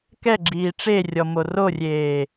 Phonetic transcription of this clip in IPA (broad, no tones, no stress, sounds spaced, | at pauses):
k ɛ ɡ͡ǁ iː ʈ͡ʂ e rʲ ɔ m o r o rʲ eː